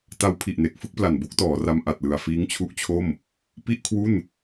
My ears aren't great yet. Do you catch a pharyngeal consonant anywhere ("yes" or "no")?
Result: no